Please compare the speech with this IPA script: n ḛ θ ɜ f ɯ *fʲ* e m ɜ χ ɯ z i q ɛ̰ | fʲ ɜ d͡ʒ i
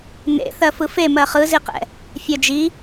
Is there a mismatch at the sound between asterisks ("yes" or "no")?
yes